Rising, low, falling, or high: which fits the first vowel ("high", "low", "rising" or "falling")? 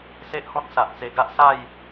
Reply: high